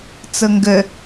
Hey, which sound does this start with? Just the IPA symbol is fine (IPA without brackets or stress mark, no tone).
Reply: t͡s